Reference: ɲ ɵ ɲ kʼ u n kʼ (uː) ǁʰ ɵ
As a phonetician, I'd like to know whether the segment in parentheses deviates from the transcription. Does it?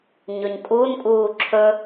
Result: no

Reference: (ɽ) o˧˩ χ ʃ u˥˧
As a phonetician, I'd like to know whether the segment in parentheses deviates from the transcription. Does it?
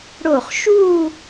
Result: no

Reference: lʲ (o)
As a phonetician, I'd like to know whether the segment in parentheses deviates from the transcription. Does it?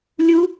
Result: yes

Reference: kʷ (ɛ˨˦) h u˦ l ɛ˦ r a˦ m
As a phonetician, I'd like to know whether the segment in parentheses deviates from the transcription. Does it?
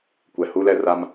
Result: yes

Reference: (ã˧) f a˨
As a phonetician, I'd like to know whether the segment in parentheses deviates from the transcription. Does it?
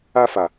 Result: yes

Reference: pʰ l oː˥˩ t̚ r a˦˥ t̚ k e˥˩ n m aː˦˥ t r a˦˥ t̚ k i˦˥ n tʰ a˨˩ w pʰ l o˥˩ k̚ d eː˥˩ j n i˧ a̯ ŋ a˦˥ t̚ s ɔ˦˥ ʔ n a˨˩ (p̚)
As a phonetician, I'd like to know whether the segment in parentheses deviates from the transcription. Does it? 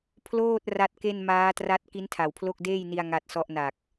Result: yes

